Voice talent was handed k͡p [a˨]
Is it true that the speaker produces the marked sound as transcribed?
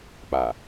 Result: yes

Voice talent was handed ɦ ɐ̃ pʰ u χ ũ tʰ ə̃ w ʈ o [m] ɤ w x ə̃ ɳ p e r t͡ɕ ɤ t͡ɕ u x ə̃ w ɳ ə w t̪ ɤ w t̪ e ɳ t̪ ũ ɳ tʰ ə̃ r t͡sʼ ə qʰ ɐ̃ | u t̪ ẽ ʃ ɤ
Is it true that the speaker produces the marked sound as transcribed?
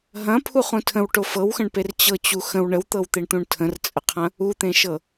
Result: no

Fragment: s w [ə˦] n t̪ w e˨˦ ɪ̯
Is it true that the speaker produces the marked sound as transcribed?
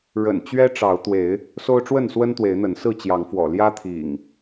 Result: yes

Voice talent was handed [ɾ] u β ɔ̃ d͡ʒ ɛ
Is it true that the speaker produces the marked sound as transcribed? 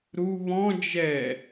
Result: yes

